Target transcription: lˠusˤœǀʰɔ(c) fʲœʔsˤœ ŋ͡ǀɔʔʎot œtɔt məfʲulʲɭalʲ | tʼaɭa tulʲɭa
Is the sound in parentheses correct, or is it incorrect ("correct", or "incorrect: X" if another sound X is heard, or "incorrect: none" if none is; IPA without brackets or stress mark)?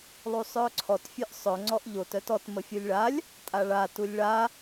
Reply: incorrect: t